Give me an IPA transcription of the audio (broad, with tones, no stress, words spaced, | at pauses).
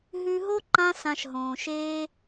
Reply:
ɦʉ˧ɦo˦ ǃã˦sã˧ʃɦõː˨ʃeː˦